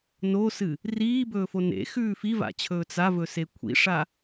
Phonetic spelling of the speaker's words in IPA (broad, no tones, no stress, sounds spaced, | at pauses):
n o s ɨ | r iː b ɵː f o n ḛ x ʉː f i v a̰ t͡ɕʰ ɵː t͡s a v ɵ s e kʷʰ ḭ ʂ a